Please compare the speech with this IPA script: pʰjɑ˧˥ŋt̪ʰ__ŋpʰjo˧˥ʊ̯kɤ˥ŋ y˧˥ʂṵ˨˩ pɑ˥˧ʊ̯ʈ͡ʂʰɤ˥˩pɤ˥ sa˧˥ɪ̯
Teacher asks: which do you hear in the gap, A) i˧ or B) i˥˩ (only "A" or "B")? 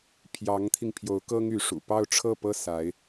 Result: A